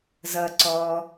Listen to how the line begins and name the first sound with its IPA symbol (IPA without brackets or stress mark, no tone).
z